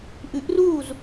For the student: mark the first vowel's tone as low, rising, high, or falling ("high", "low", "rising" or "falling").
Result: rising